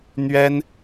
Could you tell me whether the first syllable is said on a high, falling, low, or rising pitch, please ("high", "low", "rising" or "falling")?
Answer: high